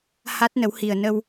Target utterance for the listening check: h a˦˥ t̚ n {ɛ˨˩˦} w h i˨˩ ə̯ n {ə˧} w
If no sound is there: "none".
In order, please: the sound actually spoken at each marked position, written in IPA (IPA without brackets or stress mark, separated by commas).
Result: ə˨˩˦, ə˧